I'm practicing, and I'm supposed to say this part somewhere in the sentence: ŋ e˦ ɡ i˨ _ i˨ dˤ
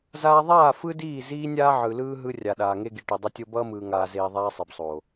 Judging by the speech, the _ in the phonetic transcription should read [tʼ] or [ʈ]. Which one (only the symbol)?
ʈ